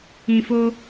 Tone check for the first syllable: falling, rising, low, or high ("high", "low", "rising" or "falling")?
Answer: low